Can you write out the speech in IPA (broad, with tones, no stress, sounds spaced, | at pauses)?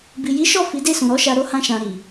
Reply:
b i˨ j i˨˦ ʃ ɔ˦˨ f i˨˦ d e˦˨ s ũ˨ ɾ ɔ˨˦ ʃ a˧ ɾ o˦ h ã˧ ʃ ã˨ ɾ i˨